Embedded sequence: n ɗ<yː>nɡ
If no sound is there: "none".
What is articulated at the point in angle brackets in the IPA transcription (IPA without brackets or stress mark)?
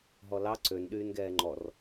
yː